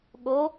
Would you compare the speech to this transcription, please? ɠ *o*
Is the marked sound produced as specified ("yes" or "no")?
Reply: yes